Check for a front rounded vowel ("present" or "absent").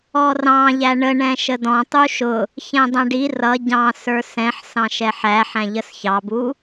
absent